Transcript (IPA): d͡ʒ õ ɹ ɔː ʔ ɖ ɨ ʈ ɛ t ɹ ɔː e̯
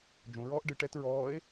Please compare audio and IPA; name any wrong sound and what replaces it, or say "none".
none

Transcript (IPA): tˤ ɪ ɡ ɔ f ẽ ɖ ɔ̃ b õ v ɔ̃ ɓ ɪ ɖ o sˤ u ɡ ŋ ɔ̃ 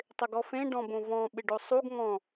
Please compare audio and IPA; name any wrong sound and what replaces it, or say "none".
none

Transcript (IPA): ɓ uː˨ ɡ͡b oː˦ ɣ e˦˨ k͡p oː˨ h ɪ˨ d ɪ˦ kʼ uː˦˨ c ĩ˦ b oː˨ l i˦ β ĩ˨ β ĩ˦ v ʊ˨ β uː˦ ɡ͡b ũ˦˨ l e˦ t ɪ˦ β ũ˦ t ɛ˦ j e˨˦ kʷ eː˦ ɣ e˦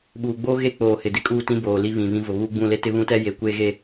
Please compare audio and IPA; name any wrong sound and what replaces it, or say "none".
c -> t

